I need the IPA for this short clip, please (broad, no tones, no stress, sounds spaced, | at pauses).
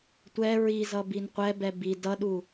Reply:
tʷ ɛ ɹ i z ʌ b i n qʷ ɛ b ɛ b i d ʌ ɗ u